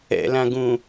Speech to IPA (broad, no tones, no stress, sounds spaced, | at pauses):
ɛ̰ l ã ɡ ũ